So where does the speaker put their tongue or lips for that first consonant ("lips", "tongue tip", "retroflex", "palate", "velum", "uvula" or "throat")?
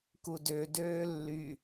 velum